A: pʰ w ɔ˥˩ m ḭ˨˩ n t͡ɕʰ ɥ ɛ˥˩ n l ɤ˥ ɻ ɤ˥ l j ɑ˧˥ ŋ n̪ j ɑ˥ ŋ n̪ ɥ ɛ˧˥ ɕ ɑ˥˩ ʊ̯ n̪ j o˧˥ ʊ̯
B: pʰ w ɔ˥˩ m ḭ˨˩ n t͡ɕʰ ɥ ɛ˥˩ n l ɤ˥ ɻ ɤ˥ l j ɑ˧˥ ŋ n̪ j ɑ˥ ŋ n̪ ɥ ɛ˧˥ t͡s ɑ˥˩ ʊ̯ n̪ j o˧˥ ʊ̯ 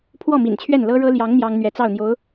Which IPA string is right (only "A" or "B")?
B